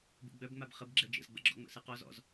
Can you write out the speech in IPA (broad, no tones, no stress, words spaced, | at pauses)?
bṵɡ͡bœbŋ͡mab χəb ɡ͡ǁɛd͡ʒə̰zɡ͡bə̰ɡ͡ǁɔ̰ ŋ͡mə̰sɯqɔz ɔ̰z